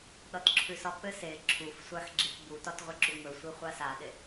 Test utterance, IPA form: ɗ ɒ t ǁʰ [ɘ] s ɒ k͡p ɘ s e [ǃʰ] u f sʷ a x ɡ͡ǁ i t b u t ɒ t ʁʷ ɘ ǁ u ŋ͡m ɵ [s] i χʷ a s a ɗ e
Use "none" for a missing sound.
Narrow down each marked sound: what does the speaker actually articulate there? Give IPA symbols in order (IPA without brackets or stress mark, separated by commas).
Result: ʉ, ǁʰ, sʷ